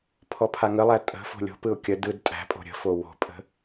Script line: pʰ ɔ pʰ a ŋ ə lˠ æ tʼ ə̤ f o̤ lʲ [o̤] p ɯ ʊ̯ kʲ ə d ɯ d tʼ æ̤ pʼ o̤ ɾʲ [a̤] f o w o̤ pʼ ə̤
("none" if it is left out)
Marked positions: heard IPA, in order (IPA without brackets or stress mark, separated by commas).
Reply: o̤, ə̤